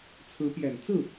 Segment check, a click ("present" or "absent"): absent